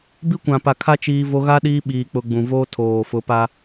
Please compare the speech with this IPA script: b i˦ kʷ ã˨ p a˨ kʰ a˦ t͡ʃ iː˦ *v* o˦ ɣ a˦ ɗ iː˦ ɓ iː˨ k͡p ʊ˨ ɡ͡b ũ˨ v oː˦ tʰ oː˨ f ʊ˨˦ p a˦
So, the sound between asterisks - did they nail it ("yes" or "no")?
yes